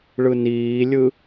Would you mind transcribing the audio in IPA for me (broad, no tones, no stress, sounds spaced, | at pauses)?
ɭ ɯ n iː lʲ ɯ